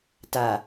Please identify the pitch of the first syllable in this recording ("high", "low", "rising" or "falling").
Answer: low